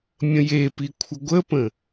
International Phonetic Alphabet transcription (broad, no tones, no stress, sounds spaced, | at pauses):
mʲ ə̃ j e p i kʷʰ ə ɡʷ ə p ə̃